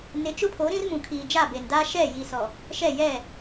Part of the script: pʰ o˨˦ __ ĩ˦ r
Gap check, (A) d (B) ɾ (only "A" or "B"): B